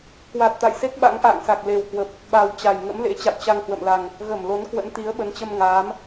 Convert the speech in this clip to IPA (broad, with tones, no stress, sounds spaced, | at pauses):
k w a˨˩ t̚ t̪ a̰˧˨ j s e˦˥ k̚ ɓ a̰˧˥ ŋ ʔ a̰ː˧˨ ŋ s a˨˩ k̚ l e˨˩ w k w ə˨˩ p̚ | ɓ a˨˩ w t͡ɕ a˨˩ j ŋ ə̰˧˥ m l ḛ˧˥ t͡ɕ a̰˧˨ w t͡ɕ a˧ ŋ h w ə̰˧˨ m l a˨˩ ŋ | ɣ ə˧˩ m l o˨˦ n k w ə̰˧˥ n t̪ i˨˦ ə̯ ɓ ə˨˦ n t͡ɕ ə˧ m ŋ aː˨˦ m